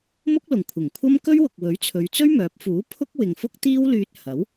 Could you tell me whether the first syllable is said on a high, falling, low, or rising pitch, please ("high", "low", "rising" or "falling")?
high